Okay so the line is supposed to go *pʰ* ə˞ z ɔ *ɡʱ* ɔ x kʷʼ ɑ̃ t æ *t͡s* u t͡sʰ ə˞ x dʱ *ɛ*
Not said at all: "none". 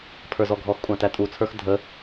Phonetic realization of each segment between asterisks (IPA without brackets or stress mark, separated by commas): pʰ, ɡʱ, tʼ, ə